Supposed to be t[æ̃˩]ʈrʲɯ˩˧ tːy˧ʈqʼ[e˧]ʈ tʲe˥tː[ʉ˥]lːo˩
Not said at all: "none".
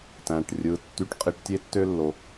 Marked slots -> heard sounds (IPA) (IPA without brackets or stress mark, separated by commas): æ̃˩, i˧, ø˥